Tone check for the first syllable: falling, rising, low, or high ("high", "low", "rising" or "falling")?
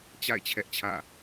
falling